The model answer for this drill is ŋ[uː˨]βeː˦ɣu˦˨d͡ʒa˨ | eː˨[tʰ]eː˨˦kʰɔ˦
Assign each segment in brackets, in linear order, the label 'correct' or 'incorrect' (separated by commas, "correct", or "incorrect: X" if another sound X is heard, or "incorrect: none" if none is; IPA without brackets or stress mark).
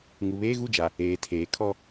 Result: incorrect: u˨, correct